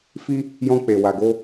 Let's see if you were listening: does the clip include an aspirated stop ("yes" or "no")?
no